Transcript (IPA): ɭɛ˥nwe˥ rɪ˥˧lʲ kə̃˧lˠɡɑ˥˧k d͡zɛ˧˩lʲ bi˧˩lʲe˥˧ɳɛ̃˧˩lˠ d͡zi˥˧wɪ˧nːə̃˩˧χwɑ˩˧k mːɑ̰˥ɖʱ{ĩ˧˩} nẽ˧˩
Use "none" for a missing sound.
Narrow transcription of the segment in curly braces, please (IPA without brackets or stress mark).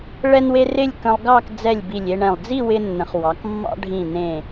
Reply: ĩ˧˩